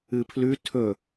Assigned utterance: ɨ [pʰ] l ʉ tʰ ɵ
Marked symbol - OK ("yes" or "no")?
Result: yes